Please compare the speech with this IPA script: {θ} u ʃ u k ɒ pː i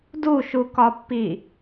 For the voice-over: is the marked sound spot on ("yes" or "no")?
no